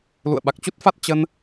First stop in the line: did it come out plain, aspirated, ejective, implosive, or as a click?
implosive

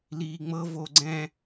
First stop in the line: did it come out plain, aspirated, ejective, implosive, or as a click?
click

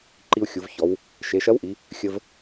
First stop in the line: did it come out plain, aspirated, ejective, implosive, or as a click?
click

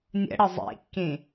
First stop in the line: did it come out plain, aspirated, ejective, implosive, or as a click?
plain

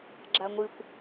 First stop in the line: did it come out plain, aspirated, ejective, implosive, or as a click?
click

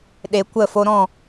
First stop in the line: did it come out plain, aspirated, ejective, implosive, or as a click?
implosive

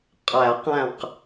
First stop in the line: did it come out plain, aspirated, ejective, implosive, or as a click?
ejective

